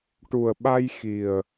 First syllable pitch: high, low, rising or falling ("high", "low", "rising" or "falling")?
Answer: low